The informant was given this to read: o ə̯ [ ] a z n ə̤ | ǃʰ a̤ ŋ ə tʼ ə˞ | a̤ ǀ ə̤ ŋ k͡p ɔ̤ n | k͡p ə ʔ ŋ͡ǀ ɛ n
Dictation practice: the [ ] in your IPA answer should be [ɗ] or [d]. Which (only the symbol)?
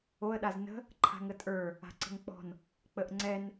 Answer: ɗ